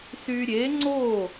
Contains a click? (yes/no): yes